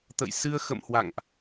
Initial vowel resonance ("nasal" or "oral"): oral